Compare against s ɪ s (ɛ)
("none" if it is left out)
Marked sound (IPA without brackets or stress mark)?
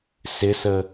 ə